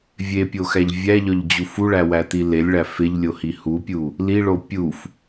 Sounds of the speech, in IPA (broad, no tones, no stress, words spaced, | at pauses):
vʲepʲoxæʎ vʲæʎɒʎd͡ʑu fuɭæwæti lelʲɭæ feʎlʲohi hupʲu | liɭo pʲuf